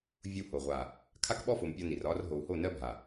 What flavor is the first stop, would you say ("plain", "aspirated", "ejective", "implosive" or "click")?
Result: aspirated